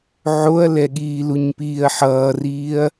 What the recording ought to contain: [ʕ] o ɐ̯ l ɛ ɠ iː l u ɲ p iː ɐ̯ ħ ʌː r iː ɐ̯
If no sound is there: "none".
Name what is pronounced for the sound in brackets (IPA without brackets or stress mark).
ʕ